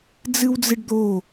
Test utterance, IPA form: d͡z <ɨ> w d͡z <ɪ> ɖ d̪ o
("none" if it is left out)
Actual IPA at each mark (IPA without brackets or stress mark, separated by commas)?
ɨ, ɪ